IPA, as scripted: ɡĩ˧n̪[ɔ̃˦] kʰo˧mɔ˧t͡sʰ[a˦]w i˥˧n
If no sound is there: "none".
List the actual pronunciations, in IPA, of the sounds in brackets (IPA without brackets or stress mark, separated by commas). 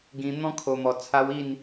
ɔ̃˦, a˦